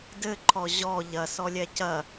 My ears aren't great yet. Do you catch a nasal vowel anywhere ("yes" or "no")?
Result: no